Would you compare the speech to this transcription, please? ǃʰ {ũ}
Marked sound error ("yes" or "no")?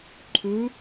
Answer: yes